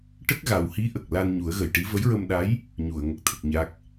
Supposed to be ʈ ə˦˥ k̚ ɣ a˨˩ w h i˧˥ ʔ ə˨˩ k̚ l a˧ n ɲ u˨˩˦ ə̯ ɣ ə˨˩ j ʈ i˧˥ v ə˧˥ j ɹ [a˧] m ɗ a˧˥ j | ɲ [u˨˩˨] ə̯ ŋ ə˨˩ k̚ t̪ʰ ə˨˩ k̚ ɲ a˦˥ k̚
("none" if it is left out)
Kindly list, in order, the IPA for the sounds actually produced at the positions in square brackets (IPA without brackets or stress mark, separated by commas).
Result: ə˧, u˨˩˨